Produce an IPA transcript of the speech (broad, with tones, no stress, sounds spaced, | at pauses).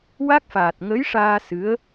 w a˦˥ k̚ f aː˨˩ t̚ ŋ ə˧˥ j ʂ aː˧ s ɨ˧˥ ə̯